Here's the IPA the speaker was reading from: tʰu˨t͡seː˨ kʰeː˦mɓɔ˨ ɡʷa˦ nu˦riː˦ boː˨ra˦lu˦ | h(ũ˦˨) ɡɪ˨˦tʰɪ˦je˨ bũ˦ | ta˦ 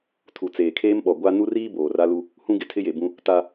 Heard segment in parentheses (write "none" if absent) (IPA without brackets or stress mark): ũ˦